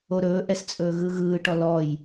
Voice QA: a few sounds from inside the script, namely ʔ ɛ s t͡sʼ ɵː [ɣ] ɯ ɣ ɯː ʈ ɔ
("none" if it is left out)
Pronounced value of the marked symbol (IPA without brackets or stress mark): ɣ